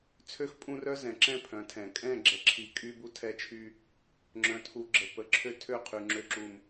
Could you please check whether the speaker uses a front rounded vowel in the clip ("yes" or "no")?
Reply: yes